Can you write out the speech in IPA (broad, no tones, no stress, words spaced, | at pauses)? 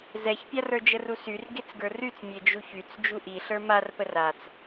zɛçpʲarə˞ d͡ʒərusyr ɡet͡sɡə˞ryt͡s mʲed͡ʒuçyt͡s d͡ʒuʔi ɬə˞marpər at͡s